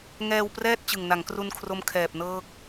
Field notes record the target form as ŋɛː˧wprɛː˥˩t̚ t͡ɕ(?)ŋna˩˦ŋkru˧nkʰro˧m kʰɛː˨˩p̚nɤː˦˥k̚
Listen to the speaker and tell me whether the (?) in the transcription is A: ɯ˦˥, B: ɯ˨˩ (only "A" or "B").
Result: B